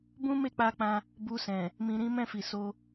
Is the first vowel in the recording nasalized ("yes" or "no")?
yes